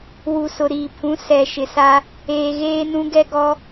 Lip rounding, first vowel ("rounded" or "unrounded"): rounded